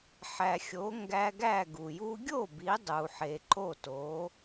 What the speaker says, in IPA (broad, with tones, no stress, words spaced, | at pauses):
ħæ˩xʲo˩˥ŋɡæ˧ɡæ˥˩ ɡu˩ju˧ɡʲo˥˩ bi˩˥dˤu˩ħe˩ ǃo˥˩to˩˥